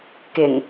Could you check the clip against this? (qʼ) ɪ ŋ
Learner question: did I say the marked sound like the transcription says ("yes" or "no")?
no